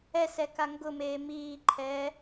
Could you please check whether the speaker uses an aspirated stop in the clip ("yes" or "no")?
yes